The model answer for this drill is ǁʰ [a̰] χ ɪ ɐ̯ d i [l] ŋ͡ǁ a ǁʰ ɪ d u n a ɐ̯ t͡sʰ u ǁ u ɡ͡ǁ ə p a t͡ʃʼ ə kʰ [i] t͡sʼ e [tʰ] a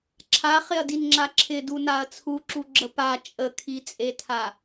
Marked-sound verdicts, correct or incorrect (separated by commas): incorrect, incorrect, correct, correct